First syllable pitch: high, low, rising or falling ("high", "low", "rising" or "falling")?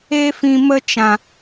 high